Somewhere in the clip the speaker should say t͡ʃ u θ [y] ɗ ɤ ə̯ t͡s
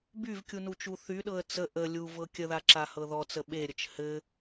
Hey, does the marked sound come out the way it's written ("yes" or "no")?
yes